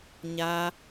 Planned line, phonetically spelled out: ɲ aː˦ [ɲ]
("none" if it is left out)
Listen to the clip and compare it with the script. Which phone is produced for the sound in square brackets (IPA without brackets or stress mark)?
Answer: none